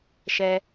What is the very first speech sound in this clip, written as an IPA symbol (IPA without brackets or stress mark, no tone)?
ʃ